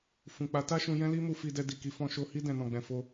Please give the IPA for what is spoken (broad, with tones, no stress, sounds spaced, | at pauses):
f ũ˨ k͡p a˨˦ t a˦ ʃ ũ˧ j ɛ̃˦ l i˦ m u˧ f i˧ d ɛ˧ d i˨ k i˧ f ɔ̃˧ ʃ o˧ h i˦ d ɛ̃˧ n ɔ̃˧ ɡ͡b ɛ̃˧ f o˧